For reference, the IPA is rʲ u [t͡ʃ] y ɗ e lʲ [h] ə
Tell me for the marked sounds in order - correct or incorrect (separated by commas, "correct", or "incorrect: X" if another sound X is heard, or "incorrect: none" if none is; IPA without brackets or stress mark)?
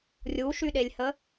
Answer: incorrect: ʃ, correct